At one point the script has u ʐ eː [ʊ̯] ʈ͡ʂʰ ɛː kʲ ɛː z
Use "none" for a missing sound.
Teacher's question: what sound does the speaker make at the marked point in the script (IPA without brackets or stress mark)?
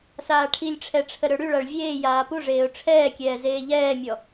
ʊ̯